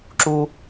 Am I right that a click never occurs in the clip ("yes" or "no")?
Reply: no